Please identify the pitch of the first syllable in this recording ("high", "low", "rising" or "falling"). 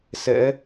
rising